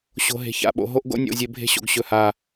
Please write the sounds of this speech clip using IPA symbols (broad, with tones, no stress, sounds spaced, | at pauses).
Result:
ɕ o̤˨ ɦ e̤˨ ç a̰˦˨ ɓ o̰˨ ɦ o˦ ʔ ɡ o̰˦ nʲ o̰˦˨ zʲ e˦ bʱ e̤˦ ɕ o̰˨ ɡ ɕ ɵ˦˨ h a˦˨